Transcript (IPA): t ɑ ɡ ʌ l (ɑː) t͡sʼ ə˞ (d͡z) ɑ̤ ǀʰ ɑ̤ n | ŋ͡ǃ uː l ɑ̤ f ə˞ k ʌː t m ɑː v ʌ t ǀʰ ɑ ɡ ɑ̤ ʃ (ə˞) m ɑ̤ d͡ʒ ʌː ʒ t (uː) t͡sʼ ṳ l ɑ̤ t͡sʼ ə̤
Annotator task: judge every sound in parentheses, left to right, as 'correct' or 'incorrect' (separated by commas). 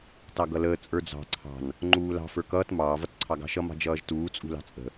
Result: incorrect, correct, incorrect, correct